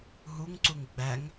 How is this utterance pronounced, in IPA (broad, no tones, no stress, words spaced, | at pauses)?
ɦuŋǀuŋ ɡ͡bæŋ